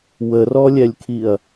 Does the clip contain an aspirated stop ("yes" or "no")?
yes